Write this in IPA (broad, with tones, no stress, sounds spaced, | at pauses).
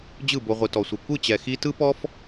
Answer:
d͡ʑ ɯ˦˨ b o˧ ʁʷ ɯ˨ t ɔ˨ sʷ ɯ˨ kʷ ɯ˦˨ t͡ɕ ɛ˨ x i˦ t ɯ˦ p ɔ˦ f